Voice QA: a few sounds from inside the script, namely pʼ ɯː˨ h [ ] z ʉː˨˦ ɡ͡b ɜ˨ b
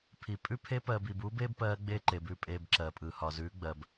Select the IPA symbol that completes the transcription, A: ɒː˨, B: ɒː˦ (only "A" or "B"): A